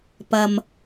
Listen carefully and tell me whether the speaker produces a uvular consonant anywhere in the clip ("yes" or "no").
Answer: no